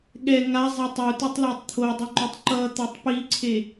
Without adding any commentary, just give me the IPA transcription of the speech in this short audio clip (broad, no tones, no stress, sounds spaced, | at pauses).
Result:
ɠ ɛ ŋ a zˤ e tˤ u t ɯ tˤ l a tˤ t̪ʰ o dˤ u ŋ͡ǃ o tˤ ǃ ʌ t̪ a tˤ p i ǀʰ e